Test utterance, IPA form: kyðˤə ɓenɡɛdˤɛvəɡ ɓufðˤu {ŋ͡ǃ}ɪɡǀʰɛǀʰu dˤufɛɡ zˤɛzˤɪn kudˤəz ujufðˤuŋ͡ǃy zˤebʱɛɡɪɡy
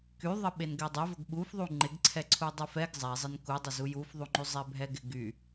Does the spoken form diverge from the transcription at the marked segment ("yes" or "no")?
no